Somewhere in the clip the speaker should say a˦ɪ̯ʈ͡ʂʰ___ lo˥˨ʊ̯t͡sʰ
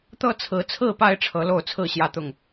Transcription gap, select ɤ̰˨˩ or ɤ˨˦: ɤ˨˦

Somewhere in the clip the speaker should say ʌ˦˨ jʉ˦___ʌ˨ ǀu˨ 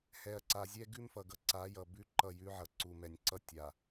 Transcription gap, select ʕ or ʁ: ʕ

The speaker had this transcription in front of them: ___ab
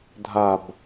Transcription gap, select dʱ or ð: dʱ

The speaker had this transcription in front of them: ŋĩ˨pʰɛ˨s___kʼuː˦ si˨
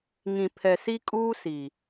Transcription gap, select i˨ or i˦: i˦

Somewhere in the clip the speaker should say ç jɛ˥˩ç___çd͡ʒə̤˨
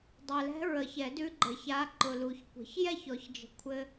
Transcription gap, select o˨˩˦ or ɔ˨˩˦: ɔ˨˩˦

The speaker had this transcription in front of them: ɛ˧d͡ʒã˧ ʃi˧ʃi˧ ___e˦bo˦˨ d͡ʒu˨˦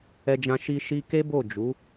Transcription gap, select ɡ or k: k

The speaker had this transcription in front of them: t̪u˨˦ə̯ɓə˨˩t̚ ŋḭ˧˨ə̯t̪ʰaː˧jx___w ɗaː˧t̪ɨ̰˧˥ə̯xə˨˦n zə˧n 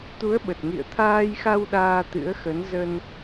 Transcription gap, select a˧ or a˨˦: a˧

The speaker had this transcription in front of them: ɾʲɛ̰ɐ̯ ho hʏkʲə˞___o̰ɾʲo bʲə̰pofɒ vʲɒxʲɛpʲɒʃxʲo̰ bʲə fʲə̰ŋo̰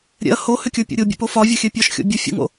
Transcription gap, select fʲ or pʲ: pʲ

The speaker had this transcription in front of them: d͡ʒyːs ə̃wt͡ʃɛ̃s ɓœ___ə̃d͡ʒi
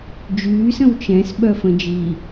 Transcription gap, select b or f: f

